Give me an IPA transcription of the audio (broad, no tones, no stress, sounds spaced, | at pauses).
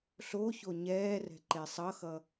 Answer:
ɬ o ç o ɲ ɛː r ɛ̤ ǃ e sˤ ʌ x ʌ